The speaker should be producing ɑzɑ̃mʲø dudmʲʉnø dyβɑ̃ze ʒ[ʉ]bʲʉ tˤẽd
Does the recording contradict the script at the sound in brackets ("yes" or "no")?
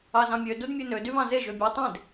yes